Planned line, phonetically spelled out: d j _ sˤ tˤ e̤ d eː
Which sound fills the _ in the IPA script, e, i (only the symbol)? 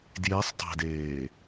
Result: e